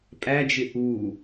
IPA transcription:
pʼæd͡ʒɪ ʔu

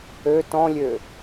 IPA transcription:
ø tɔ̃lʲø

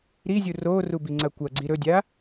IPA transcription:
ɾizʲu roru biŋ͡ǀɐkʷɐɡ͡ǀi ɾɵdʲa

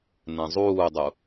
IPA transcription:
nɛ̃zˤuːdˤu

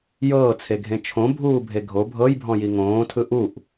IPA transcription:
jɤːt͡sʰeɡʱẽ t͡ʃʰõbʱuːbʱe ɡʱo bʱɤjbʱɔ̃ji ŋõːtʰɯ ʔuʔ

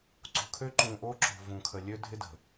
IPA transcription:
ǀṳ˨kʰø˦ ǃũ˨ʔo˦ ǁo̤˨vũ˨ kʰə˨lʲø˦dʱɪ˦də̤˨

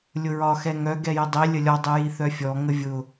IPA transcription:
lʲʊɹɒ xɛŋœ ɡɛjədˤi lʲəlʲɔ dˤijiθœfʲɔ ŋəvʲʊ

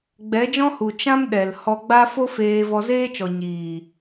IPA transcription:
ɡ͡bɛ˨˦d͡ʒɔ̃˦hu˨ t͡ʃã˦mɗɛ˨l hɔ˧ɡ͡ba˦ fo˦ feː˧ vɔ˧zeː˦t͡ʃɔ˨ ɲiː˨

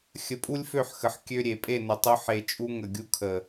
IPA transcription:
xʲə˧pʼu˦lʲfø˦˨ħxə˨ħ kʲø˦ ɾʲe˨pʼe˦˨nə˨tˤu˧ ħe˧t͡ʃʼu˦ ŋə˨ɡʲu˧kʰə˨

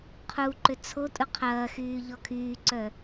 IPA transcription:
qʰuǃʏ t͡sʰotʼu qʰɐːxyː ʎɔkʰyːǀœ

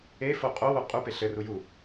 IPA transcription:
efo qʼowo qʼupe ɬɘru ju

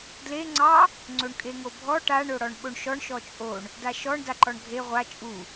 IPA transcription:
dle ŋ͡ǀɑ | ŋ͡ǀoɳkʼeŋobʱɔ ʈaɳ oɽɔɳɓoɳʃɔɳ ʃɔt͡ʃʼoɳ | daʃɔɳ daǃɔɳɡʱe ʁʷa t͡ʃʼu

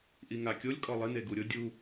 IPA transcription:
ʔiŋakʲolʲ kʼɔlˠɪ neɡuɾʲʊ dʲu

